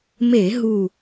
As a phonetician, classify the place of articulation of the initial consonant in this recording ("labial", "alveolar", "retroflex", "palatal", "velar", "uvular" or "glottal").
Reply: labial